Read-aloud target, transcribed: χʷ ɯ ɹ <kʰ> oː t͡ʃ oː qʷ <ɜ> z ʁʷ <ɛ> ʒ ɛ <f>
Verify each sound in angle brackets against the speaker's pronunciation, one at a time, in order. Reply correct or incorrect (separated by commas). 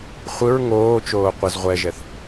incorrect, incorrect, correct, incorrect